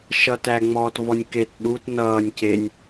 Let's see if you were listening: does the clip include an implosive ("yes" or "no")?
yes